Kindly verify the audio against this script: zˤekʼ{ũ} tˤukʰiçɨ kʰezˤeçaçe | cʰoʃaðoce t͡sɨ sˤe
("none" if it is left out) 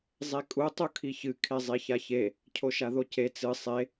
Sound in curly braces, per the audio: u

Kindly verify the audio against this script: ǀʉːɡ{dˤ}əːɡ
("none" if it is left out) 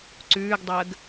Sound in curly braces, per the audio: dˤ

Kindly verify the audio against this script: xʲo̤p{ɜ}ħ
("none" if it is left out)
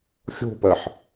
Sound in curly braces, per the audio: ɜ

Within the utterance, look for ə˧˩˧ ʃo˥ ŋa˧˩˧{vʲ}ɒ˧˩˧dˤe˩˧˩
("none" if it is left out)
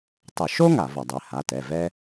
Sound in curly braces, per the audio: v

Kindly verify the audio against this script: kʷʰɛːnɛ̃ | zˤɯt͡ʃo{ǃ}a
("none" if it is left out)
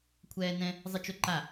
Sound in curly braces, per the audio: ǃ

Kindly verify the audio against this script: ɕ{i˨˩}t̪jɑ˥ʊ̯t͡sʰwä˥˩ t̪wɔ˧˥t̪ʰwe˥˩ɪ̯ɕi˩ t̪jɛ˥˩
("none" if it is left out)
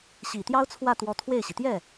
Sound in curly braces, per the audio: i˨˩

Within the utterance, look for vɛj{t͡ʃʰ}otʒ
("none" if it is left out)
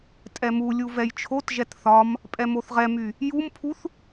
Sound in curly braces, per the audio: t͡ʃʰ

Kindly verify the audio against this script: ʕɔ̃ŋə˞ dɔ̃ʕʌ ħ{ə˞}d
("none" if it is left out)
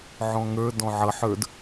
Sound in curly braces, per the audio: ə˞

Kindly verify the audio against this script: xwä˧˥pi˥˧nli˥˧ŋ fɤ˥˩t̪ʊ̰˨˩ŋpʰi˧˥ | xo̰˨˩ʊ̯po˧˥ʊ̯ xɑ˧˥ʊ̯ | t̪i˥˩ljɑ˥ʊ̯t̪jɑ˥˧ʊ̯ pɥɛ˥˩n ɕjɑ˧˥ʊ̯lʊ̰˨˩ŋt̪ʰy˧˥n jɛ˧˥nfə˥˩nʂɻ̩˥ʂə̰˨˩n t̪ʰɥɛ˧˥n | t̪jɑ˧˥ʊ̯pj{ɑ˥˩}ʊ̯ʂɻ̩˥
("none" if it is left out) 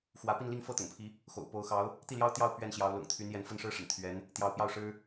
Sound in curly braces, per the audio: ɑ˥˩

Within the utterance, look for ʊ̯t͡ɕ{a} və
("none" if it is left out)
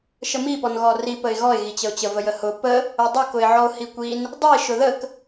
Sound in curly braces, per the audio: ə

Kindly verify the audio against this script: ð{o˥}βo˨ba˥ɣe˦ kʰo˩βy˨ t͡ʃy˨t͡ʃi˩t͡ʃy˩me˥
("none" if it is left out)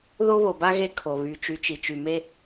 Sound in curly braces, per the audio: o˥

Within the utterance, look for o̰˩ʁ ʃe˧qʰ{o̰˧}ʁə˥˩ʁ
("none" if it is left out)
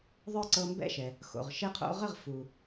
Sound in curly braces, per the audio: o̰˧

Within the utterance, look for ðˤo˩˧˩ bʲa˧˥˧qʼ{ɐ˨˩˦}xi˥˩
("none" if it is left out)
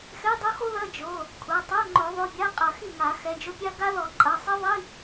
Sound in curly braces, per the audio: ɐ˨˩˦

